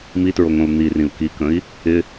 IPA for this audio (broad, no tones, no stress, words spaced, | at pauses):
mitɹoŋõu̯ n̪irĩu̯ kikə̃i̯ | ɪ